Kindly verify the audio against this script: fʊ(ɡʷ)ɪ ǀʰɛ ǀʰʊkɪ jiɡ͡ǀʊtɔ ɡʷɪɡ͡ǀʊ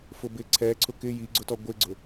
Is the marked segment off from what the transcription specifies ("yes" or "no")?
yes